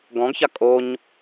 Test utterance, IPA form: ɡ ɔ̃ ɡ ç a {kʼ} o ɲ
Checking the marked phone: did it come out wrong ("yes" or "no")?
no